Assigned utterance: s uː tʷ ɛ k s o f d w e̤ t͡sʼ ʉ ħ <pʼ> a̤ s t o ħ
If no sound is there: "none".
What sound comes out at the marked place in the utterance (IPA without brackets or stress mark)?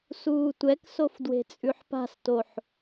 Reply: p